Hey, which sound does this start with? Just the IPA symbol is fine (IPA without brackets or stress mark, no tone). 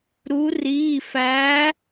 ɾ